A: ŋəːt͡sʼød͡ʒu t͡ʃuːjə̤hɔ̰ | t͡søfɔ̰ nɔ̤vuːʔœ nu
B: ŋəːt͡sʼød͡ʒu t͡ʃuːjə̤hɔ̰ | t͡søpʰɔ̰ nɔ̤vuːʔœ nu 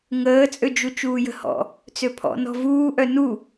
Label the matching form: B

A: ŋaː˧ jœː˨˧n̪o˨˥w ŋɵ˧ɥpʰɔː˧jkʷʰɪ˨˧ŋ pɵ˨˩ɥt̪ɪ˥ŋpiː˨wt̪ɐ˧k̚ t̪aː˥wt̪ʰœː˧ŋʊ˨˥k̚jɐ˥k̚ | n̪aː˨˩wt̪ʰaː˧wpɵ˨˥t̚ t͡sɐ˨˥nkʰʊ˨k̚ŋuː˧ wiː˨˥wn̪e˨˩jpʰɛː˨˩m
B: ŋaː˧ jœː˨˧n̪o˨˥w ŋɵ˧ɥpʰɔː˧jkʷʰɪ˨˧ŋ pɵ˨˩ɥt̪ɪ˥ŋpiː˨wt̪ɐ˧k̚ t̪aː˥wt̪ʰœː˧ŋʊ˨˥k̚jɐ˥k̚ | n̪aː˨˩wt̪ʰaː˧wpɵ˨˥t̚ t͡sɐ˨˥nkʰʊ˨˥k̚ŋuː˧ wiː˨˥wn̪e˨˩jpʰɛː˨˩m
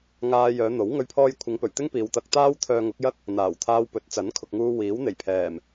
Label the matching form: A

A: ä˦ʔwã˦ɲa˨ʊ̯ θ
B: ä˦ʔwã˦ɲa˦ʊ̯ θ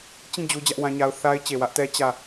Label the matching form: B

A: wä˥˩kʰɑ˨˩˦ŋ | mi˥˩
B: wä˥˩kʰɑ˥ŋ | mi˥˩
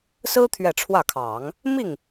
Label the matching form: A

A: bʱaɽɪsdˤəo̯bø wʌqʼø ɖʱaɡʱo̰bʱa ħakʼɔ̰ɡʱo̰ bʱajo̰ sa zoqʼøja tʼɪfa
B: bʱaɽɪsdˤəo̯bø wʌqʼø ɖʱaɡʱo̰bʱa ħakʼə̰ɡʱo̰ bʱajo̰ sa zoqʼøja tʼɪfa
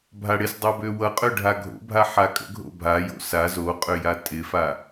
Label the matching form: B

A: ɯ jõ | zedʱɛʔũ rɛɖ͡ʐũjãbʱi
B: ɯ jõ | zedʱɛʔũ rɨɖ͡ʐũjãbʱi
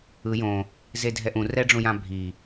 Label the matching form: A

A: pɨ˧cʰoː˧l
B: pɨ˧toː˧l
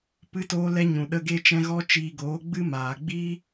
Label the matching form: B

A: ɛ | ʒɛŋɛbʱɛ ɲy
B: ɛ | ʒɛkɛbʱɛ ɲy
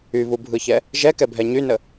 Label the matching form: B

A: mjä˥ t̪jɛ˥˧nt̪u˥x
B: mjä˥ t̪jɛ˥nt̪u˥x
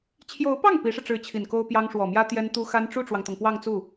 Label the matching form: B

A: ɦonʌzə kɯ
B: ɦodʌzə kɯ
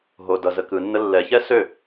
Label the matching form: B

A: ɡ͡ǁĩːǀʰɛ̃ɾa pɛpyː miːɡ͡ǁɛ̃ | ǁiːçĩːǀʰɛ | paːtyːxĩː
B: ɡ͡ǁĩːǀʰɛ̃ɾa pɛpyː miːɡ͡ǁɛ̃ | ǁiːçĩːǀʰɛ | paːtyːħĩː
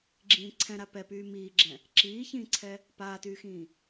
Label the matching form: A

